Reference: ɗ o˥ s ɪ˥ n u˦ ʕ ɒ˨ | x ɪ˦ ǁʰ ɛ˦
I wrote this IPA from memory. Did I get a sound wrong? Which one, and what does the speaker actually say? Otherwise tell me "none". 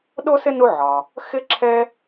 none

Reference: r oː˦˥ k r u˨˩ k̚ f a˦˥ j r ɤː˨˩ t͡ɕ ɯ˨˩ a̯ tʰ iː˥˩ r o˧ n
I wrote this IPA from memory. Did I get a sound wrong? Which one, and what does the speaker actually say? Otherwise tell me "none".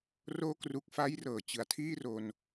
none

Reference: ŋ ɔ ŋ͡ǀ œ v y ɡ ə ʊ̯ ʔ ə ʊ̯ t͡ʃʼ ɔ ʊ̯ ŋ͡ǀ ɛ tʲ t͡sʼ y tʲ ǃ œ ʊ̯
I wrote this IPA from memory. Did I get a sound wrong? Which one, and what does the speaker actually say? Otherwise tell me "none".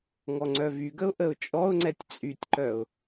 none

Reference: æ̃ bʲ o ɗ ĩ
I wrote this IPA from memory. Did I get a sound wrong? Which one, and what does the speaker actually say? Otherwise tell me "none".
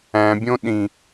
o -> õ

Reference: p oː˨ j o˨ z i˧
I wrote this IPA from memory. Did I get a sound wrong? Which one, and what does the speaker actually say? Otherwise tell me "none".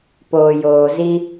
o˨ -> oː˨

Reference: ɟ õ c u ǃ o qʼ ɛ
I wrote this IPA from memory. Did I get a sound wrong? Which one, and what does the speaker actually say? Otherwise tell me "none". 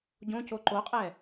u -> o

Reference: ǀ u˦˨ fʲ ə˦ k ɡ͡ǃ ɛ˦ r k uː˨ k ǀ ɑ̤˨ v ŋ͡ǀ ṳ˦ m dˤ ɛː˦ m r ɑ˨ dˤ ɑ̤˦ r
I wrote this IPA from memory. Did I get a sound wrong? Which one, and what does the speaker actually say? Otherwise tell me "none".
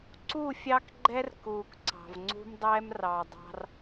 ə˦ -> ɑ˦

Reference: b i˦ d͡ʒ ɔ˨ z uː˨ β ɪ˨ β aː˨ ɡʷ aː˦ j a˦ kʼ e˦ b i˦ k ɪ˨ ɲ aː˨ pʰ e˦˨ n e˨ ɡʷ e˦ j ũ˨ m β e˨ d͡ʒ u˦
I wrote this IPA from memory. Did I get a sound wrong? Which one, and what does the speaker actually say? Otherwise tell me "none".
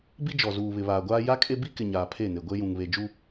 m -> ŋ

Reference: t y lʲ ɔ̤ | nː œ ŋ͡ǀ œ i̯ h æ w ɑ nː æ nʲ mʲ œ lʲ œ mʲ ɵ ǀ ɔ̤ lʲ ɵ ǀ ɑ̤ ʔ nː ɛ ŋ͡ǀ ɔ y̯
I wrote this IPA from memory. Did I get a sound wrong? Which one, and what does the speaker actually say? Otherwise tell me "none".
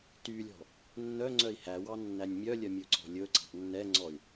none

